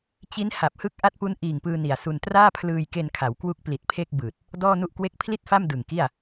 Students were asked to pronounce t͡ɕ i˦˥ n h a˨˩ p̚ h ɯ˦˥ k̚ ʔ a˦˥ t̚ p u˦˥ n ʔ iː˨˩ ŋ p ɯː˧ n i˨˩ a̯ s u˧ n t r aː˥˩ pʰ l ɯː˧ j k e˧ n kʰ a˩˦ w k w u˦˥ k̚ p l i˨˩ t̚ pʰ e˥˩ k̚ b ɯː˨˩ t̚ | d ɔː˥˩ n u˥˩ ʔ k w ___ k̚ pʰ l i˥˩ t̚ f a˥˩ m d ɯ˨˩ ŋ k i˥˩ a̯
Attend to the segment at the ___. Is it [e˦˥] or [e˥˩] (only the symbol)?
e˥˩